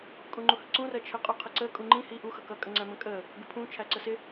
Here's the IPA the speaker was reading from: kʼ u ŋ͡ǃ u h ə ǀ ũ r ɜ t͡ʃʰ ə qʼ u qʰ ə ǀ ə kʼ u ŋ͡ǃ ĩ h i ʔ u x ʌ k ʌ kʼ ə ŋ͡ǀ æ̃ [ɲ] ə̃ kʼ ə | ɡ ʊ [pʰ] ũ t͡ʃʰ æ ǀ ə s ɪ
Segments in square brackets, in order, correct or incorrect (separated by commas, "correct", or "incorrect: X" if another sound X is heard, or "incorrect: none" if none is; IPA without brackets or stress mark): incorrect: m, correct